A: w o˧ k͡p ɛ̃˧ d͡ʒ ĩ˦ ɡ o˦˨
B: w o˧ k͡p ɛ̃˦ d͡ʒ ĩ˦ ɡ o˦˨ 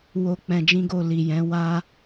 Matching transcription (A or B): A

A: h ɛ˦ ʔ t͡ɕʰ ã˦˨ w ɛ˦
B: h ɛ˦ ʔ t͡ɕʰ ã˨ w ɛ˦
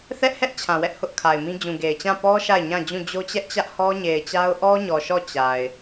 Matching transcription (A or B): B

